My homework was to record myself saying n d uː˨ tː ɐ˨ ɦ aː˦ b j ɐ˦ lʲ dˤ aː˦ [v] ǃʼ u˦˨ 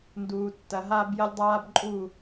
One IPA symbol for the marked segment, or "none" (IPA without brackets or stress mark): b